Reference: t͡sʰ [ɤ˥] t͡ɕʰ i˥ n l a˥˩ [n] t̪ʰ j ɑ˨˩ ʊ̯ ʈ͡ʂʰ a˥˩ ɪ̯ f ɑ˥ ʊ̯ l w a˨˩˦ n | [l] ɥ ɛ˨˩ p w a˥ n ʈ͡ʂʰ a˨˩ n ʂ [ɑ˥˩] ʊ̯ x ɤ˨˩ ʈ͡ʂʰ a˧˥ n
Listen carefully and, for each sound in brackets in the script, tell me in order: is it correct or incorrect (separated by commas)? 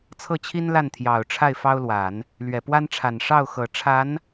incorrect, correct, correct, correct